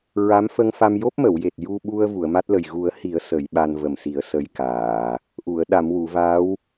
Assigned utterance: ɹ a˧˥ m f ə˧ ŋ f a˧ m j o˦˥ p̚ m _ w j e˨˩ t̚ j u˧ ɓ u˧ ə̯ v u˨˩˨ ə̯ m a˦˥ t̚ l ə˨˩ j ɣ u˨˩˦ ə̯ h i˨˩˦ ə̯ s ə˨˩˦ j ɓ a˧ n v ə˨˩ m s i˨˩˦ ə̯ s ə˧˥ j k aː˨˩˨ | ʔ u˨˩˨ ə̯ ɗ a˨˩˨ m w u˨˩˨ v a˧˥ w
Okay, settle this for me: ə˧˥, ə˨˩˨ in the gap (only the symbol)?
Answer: ə˨˩˨